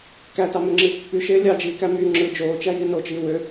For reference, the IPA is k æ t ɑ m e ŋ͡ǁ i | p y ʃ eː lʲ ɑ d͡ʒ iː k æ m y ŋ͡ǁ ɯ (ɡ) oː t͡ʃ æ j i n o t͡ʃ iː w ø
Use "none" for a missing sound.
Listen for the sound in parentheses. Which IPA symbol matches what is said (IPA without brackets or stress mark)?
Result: d͡ʒ